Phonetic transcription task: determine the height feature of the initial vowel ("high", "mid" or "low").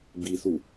high